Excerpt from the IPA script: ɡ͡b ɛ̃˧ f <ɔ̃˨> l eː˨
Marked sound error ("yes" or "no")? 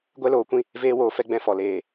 yes